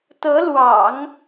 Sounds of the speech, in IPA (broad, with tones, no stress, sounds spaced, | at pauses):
t̪ ɤ˧˥ l w ɑ̰˨˩˦ ŋ